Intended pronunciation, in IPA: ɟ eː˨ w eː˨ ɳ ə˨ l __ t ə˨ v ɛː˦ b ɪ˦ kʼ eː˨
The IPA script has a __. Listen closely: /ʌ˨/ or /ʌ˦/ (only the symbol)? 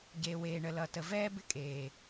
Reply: ʌ˨